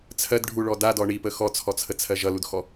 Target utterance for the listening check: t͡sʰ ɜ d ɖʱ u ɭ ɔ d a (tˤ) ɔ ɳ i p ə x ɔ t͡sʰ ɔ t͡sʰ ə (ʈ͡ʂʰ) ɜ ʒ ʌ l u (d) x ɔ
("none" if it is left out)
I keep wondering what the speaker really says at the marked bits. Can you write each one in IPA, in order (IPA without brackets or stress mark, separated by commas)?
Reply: d, t͡sʰ, d